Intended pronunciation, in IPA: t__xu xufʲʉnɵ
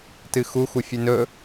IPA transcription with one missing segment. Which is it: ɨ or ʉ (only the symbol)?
ɨ